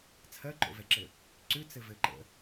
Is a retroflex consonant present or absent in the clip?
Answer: absent